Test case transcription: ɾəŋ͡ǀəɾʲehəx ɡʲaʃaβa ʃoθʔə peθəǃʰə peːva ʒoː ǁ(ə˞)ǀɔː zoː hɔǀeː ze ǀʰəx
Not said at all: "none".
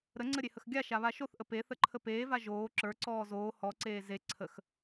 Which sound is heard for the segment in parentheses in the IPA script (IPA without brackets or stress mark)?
ə˞